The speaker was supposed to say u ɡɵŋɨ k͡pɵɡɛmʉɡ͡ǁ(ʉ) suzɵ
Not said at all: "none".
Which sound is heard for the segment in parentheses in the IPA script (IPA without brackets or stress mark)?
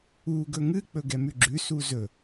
ʉ